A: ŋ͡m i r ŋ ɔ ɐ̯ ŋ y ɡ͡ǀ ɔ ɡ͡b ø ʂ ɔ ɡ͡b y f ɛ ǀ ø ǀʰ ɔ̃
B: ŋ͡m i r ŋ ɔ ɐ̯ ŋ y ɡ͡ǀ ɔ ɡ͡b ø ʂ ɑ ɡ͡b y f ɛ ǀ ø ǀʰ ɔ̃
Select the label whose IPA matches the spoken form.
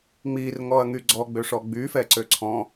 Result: A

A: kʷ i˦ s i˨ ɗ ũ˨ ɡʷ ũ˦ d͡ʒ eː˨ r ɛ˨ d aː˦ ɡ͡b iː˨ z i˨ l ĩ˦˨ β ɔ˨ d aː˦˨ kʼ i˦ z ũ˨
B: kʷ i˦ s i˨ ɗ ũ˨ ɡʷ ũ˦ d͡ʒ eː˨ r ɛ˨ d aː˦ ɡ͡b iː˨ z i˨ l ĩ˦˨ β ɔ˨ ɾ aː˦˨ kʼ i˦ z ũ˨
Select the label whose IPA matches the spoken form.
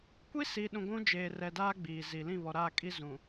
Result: B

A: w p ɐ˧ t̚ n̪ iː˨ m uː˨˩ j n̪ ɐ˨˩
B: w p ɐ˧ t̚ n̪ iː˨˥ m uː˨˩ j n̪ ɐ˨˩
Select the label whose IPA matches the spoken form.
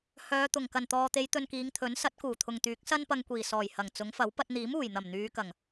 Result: B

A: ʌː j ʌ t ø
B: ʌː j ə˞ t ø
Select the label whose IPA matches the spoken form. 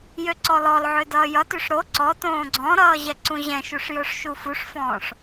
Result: A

